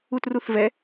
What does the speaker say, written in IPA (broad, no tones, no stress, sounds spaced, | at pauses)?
u t r u θ v ɛ